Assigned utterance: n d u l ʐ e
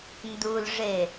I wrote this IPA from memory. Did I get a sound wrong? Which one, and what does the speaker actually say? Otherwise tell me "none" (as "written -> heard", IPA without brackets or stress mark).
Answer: none